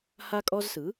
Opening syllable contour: high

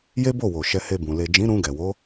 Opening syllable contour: high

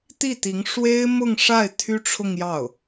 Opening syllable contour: falling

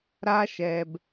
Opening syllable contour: high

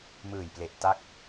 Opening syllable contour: low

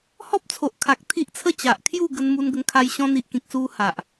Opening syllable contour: high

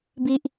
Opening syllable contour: high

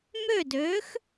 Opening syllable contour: falling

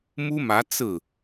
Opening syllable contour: high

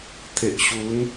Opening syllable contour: low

